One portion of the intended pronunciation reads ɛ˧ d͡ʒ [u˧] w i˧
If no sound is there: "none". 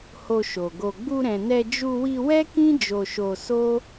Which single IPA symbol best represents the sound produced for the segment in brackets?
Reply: u˧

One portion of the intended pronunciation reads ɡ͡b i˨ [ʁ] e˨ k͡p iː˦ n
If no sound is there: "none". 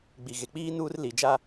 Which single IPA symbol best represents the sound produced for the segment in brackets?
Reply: ɣ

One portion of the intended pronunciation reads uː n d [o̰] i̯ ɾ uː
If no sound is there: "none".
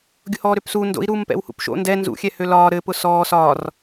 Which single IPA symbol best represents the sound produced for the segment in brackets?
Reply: o̰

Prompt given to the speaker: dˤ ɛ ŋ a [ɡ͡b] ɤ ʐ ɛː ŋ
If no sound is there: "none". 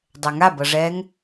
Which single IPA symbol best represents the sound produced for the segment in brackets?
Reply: b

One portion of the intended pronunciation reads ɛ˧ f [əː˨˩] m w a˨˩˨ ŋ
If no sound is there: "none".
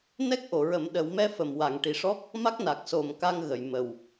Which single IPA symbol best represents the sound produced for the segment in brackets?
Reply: ə˨˩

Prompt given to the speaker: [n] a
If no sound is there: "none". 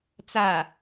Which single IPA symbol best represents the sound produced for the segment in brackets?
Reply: t͡s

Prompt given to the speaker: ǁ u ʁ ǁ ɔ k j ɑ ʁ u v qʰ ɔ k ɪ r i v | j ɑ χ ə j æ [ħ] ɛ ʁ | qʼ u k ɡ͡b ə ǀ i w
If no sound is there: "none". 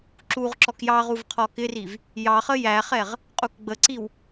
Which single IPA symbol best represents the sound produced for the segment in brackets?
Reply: χ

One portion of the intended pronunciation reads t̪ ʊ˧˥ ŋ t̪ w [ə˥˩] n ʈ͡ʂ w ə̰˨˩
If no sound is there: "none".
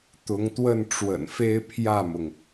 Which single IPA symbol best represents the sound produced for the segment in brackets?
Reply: ə˥˩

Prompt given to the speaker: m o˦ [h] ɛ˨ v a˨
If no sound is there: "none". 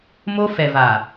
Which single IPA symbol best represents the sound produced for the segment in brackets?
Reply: f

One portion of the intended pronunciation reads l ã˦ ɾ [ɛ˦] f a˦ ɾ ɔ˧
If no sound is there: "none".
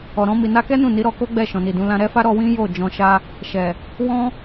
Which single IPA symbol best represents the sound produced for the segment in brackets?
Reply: ɛ˦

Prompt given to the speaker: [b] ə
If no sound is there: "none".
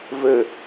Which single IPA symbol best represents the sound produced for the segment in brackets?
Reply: v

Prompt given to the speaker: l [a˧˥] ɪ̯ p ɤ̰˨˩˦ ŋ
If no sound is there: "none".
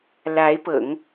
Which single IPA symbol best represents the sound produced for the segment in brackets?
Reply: a˧˥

